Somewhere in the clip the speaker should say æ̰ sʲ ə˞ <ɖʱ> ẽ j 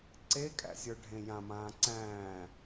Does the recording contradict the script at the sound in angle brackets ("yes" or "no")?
no